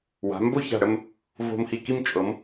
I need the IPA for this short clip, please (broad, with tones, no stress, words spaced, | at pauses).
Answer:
wa̤˩˧mbo˥˧ça̤˧˩ɽə˥˧m | vo̤˧mhi˧˩ ki˥˧mt͡ʃʼɤ˩˧m